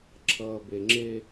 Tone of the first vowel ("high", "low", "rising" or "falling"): low